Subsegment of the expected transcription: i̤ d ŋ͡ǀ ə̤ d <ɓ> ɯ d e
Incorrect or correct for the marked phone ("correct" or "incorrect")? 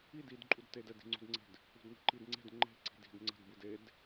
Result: incorrect